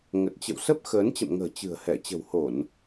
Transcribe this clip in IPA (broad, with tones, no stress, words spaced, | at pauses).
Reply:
ŋə˨˩t̚ t͡ɕə̰˧˨wsə˦˥p̚ xəː˨˦nt͡ɕə̰˧˨mŋə̤ː˨˩ t͡ɕɨ̤˨˩ə̯hɛ˧˩ t͡ɕə̤˨˩who˧˩˨n